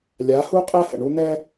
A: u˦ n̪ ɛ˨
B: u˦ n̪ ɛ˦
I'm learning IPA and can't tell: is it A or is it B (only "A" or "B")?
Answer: B